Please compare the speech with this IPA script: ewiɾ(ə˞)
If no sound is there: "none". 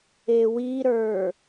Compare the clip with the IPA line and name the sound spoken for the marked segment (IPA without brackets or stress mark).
ə˞